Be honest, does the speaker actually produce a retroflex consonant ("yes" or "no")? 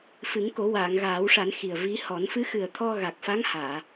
yes